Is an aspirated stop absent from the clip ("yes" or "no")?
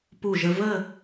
yes